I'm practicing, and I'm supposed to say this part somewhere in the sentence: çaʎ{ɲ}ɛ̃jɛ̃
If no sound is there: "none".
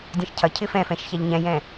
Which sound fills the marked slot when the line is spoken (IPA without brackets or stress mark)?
ɲ